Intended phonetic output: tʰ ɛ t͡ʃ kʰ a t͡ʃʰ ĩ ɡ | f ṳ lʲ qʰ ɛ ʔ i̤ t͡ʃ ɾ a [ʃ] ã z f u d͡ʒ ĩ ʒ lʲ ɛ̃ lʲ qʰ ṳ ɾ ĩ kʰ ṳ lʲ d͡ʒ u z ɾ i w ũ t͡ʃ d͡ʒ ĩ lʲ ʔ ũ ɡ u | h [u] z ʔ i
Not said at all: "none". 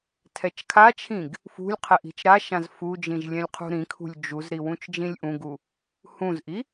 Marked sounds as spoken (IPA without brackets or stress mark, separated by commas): ʃ, ũ